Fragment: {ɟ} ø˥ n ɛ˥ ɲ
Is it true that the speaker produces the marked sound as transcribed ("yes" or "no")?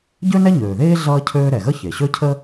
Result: yes